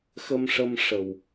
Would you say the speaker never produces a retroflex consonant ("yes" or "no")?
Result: no